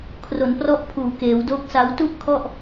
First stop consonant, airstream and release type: aspirated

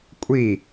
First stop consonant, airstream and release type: ejective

